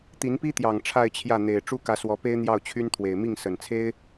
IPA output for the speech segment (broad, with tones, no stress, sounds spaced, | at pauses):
t̪ i˧˥ n p i˥ t̪ j ɑ˨˩ ŋ ʈ͡ʂʰ a˥˧ ɪ̯ t͡ɕʰ j ä˥˩ n̪ e˨˩ ɪ̯ ʈ͡ʂ u˥ k ä˧˥ s w ɔ˧˥ p e˥ ɪ̯ n̪ j ɑ˥˩ ʊ̯ t͡ɕʰ y˥ n t̪ʰ w e˨˩ ɪ̯ m i˥˩ ŋ s ə˨˩ n t͡sʰ e˥ ɪ̯